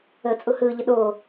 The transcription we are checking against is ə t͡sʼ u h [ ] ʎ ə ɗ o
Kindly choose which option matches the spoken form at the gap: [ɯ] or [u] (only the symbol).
ɯ